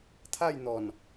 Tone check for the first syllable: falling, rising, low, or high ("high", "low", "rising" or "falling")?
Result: falling